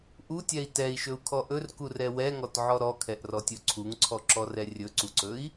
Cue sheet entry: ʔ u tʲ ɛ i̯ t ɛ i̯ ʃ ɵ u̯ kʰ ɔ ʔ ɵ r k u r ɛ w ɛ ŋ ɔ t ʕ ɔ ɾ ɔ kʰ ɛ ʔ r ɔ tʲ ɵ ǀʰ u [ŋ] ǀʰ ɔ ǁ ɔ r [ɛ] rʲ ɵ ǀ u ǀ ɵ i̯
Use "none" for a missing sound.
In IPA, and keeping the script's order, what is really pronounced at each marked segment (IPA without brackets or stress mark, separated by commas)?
ŋ, ɛ